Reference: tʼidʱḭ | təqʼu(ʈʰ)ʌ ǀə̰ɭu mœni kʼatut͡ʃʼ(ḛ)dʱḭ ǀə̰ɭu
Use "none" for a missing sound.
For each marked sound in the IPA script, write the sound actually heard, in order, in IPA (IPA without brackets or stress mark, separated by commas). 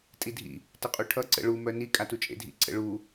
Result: ʈʰ, ḛ